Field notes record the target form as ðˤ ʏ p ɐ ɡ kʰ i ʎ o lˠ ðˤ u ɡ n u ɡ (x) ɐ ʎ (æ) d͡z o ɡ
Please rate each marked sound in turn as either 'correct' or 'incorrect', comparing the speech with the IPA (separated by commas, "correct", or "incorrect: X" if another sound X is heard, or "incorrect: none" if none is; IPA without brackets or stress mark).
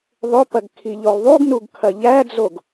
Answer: incorrect: kʰ, correct